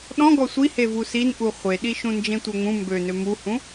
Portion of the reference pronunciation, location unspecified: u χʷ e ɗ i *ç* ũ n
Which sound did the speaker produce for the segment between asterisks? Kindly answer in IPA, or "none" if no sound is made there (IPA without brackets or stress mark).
ʃ